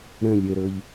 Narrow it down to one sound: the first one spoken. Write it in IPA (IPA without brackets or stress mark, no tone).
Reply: ɾ